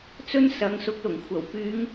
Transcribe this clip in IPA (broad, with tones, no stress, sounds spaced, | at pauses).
t͡s ɵ˥ n s ɐ˨˧ ŋ s ʊ˨˥ k̚ l ʊ˨˩ ŋ kʷʰ ɐ˨˩ w p yː˨˧ ŋ